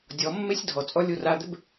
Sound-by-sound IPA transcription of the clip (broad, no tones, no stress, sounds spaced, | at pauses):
dʲ ɔ mː e sʲ dʱ ɔ t͡sʼ ɔ lʲ u r a d̪ ɪ b